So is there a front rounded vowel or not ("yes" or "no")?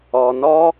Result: no